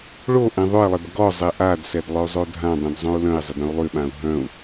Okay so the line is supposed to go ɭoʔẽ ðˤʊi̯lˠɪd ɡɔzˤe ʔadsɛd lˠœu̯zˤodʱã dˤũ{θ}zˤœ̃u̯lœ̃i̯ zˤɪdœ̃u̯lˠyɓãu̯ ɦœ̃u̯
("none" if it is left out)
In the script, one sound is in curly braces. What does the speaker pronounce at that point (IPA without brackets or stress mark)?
d